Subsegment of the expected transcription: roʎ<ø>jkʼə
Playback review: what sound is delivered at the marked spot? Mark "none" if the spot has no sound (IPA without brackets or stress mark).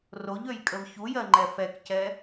ø